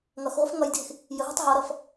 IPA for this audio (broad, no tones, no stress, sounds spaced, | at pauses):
ŋ ʌ x ʁʷ ɪ f ŋ ʌ j dʱ ɪ x | j ə ɦ ʌ tˤ ɦ ʌ ɾ ʌ f